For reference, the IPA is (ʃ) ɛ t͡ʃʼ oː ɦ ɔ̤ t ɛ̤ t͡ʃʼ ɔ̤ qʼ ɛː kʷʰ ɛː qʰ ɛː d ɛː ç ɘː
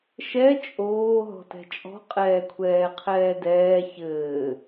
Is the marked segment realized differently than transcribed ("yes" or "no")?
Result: no